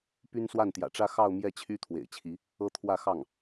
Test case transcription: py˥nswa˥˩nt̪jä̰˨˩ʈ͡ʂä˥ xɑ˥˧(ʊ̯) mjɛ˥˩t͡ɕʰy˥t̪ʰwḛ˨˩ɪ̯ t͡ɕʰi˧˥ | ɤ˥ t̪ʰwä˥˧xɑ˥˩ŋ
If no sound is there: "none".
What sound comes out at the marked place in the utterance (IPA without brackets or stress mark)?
ʊ̯